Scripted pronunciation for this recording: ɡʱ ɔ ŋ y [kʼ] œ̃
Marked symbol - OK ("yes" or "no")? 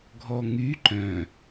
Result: no